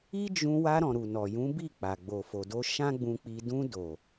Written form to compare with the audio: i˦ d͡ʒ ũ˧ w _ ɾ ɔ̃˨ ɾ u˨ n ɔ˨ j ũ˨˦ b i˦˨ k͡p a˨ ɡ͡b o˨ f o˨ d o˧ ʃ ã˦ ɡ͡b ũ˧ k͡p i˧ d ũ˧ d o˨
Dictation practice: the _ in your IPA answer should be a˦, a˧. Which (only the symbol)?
a˧